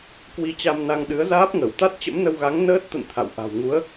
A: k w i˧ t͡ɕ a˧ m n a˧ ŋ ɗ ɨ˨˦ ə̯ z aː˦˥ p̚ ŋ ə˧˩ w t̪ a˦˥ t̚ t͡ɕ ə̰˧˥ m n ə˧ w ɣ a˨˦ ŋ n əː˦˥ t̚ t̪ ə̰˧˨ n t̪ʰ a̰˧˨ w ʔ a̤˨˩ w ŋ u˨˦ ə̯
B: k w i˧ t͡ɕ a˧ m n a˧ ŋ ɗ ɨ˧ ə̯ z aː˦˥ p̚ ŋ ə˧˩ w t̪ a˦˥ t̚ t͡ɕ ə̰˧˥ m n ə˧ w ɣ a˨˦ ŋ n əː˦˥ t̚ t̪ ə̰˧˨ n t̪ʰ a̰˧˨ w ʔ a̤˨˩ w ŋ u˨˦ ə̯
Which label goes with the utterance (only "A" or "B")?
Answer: A